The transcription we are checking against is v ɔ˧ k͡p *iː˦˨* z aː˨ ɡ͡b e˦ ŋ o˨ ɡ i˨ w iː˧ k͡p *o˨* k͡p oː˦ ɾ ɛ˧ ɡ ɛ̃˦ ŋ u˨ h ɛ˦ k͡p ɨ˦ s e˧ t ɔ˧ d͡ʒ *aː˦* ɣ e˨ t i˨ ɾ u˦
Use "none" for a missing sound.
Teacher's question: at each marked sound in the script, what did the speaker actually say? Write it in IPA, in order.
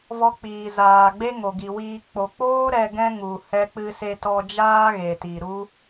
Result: iː˨, o˨, aː˦

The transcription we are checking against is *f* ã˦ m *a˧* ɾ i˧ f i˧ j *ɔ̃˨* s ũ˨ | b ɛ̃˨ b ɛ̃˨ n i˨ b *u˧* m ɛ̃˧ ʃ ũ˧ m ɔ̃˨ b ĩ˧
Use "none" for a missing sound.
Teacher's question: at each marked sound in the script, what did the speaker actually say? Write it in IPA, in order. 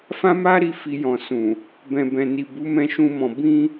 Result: f, a˦, ɔ̃˨, u˨˦

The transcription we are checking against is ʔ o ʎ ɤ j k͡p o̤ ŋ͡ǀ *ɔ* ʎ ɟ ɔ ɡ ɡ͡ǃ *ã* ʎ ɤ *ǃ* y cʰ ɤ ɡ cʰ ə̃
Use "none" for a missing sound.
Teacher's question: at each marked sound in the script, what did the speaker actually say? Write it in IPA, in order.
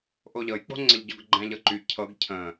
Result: ə, æ̃, ǃ

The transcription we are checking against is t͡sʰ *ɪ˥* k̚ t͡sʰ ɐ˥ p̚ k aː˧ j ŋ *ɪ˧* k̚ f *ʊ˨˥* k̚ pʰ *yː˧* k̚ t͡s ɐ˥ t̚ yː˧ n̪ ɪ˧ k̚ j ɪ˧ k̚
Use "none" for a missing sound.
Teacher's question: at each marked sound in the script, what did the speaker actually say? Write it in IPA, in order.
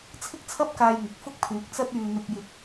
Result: ɪ˥, ɪ˨, ʊ˥, yː˨˥

